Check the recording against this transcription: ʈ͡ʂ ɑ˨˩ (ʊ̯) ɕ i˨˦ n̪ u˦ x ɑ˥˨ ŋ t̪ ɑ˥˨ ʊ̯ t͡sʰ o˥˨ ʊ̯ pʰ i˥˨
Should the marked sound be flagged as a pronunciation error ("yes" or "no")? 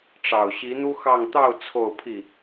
no